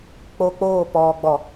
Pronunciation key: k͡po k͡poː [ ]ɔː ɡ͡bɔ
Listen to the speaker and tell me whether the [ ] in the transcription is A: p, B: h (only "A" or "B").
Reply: A